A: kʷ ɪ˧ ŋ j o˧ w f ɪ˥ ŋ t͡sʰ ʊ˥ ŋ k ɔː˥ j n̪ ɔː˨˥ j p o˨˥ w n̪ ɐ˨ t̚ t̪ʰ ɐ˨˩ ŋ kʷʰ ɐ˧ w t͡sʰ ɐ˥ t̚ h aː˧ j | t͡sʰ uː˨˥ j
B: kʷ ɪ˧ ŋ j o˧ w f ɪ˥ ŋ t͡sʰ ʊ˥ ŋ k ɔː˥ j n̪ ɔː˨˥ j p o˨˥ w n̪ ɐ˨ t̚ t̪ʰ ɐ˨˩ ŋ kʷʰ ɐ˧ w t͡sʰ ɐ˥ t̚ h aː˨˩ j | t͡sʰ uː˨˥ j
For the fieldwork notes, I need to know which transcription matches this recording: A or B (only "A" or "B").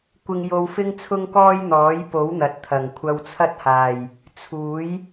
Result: B